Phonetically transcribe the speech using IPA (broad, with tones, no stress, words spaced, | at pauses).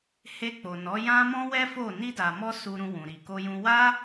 he˧k͡po˨nɔ˨˦ jã˦mɔ̃˦wɛ˦fo˦˨ ni˧da˨mɔ˧ su˧ ɾũ˧wũ˨ɾi˨ ko˧jũ˧ wa˦